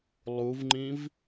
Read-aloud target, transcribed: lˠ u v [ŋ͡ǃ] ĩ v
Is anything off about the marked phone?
no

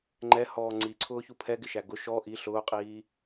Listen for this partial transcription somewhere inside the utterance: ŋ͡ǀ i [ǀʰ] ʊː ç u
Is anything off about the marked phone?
no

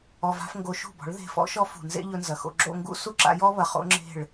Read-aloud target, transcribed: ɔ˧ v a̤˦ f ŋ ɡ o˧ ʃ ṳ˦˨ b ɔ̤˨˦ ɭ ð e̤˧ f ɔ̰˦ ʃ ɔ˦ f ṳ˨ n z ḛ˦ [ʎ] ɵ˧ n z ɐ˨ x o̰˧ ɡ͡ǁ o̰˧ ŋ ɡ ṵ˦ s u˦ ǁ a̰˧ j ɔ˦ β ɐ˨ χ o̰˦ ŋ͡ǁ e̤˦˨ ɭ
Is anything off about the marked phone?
no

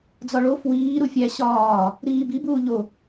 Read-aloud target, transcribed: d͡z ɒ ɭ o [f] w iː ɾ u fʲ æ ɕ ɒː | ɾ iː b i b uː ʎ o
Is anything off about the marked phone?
no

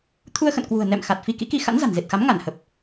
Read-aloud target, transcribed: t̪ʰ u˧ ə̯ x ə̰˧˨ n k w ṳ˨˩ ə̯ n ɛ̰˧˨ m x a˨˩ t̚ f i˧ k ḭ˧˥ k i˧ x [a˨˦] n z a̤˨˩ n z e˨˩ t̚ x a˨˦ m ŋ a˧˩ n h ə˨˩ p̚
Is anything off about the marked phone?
yes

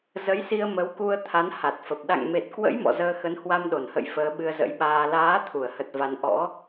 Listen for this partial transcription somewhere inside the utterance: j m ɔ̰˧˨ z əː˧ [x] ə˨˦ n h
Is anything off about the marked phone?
no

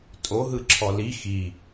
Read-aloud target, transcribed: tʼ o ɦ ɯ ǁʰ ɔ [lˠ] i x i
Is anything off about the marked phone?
yes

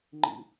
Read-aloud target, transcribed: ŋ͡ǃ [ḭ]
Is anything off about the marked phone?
no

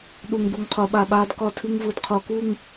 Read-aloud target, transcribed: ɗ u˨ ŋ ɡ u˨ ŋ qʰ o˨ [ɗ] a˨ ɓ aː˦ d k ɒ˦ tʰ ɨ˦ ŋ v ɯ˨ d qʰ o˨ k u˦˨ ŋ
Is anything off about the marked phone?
yes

